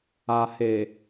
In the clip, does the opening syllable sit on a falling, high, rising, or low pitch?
low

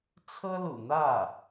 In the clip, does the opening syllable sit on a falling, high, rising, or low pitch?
high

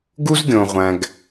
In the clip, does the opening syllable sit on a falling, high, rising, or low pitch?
high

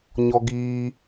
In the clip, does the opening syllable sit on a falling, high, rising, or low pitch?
high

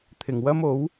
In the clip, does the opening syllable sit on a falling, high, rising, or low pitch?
low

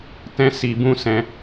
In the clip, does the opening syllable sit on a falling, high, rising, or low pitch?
high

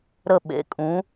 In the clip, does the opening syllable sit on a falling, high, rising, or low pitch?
falling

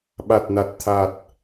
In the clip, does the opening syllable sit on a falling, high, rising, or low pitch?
low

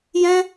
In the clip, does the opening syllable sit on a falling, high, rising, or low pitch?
high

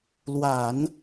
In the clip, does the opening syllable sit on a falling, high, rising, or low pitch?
low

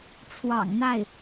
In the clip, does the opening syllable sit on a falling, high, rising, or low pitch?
low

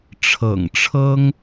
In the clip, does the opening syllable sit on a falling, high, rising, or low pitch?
low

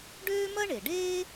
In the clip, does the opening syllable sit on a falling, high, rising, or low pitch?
high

